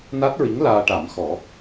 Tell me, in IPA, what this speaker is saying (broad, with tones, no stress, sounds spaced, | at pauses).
n a˦˥ t̚ ɹ i˧˥ ŋ l aː˧ ʈ a˨˩˦ m x ɔ˨˩˦